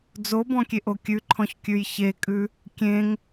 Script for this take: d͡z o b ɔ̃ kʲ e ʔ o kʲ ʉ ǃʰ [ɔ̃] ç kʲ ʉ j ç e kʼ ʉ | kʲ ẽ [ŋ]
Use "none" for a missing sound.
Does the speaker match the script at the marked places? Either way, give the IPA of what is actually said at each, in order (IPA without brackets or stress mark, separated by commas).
ɔ̃, ŋ